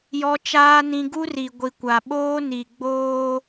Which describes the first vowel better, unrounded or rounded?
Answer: rounded